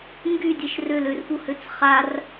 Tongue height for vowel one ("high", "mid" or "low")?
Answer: high